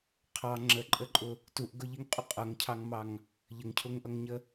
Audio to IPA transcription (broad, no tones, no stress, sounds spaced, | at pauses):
qʰ ɑ ŋ͡ǁ ə ǃʼ ə ǃʼ ʊ | t u ʔ ɡ ʊ ʎ i ŋ qʼ u qʼ ʌ ŋ cʰ ɑ ŋ m ɑ ŋ | ʎ ə ŋ cʰ ʊ ŋ ʔ ʌ ŋ ɲ ə